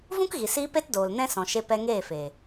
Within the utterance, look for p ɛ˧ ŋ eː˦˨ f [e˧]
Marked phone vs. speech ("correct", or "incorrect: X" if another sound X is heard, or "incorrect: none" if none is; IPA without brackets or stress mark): incorrect: e˨